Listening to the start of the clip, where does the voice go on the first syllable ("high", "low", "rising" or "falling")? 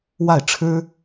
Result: falling